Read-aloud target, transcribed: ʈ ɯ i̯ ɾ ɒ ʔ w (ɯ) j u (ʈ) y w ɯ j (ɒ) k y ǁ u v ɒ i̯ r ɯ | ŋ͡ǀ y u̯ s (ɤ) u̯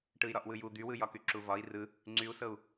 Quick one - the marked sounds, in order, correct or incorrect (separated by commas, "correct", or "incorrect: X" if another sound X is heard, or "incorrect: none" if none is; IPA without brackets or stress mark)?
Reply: correct, incorrect: d̪, correct, correct